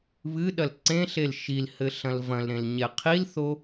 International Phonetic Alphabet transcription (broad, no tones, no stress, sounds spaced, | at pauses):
β ɨ ɗ ɐ l ǀ ẽ ɬ e l ʃ i l h ɘ ɬ ɐ̃ l v ɐ̃ l ɾ ẽ l ɲ ɛ qʰ i l θ o